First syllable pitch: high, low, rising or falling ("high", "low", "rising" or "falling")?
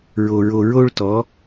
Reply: low